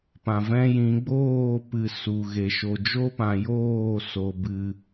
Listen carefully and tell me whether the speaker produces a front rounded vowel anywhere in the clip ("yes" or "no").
no